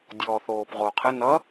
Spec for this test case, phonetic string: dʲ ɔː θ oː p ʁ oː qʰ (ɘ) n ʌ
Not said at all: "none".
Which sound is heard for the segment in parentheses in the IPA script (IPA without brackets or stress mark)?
ɘ